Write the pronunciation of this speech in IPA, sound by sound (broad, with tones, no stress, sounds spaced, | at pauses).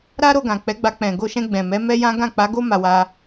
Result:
ɾ a˦ ɾ o˧ ɡ ã˨ k͡p ɛ˨˦ ɡ͡b a˧ k͡p ɛ̃˨ ɡ o˧ ʃ ɛ̃˧ ɡ͡b ɛ̃˨ m ɛ˨˦ m ɛ˦ j ã˦ ɡ ã˦˨ k͡p a˨˦ ɡ o˦ m a˧ w a˧